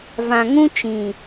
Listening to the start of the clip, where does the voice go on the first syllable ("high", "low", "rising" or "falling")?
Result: low